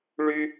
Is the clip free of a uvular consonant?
yes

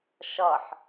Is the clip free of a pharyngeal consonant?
no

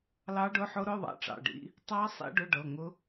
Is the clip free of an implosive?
yes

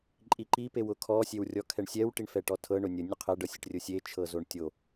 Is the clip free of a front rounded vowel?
yes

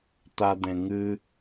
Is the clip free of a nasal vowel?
no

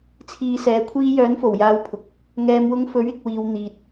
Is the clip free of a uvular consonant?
yes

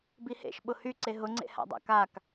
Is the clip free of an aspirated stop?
yes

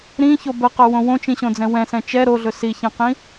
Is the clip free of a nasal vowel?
no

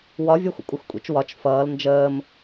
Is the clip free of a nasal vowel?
yes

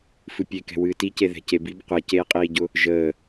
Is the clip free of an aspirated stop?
yes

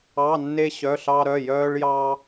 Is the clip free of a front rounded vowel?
no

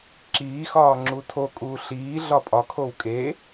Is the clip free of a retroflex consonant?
yes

